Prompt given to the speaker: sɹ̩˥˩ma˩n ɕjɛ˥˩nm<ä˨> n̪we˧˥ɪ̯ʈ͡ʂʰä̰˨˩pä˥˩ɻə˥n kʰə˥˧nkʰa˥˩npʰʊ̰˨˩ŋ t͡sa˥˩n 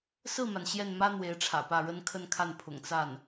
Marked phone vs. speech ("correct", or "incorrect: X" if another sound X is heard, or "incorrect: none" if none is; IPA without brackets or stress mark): incorrect: ä˥